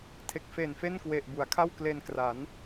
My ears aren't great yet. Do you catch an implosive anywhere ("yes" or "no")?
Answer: no